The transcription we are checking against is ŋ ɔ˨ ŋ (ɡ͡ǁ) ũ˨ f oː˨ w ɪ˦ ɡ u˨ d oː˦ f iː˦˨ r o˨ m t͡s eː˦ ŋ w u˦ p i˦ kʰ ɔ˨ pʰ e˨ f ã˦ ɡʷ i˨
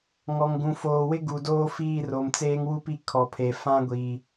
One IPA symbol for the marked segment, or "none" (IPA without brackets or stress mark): ɡ